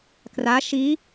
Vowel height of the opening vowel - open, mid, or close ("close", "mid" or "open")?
open